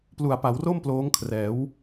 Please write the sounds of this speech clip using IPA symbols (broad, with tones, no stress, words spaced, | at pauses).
plu˨˩a̯pa˩˦wro˥˩m ploː˦˥ŋkʰrɛː˩˦w